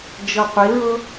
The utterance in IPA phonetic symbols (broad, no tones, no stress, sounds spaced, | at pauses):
d͡ʒ ɤ qʷ i ɹ ɤ